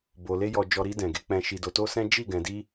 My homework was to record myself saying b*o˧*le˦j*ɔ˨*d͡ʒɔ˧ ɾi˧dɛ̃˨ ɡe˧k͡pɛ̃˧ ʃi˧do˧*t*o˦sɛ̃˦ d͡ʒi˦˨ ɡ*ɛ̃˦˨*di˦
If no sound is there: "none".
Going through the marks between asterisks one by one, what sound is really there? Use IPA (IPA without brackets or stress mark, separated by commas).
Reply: o˧, ɔ˧, t, ɛ̃˧